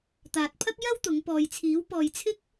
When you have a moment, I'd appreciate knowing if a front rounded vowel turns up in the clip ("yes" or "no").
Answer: no